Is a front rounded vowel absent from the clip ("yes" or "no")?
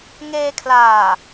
yes